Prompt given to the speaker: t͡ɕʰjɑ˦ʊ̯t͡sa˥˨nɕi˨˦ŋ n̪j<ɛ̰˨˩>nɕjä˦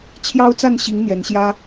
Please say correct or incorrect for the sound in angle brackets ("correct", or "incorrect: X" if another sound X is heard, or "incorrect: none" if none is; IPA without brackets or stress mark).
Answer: incorrect: ɛ˨˦